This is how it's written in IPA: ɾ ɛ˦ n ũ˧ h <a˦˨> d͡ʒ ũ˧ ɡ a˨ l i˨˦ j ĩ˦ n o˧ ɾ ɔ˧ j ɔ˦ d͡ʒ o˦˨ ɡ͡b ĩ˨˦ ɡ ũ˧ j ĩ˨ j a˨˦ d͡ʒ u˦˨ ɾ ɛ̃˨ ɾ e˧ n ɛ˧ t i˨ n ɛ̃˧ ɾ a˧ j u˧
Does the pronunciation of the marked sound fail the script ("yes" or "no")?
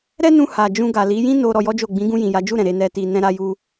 yes